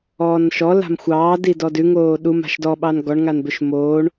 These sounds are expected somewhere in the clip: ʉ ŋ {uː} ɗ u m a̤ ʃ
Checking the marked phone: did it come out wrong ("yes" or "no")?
yes